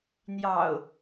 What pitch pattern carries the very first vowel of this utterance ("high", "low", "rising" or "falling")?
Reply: low